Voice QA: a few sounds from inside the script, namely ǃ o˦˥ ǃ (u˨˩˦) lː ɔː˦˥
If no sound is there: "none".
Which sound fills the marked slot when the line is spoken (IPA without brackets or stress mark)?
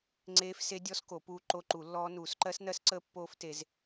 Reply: u˨˩˦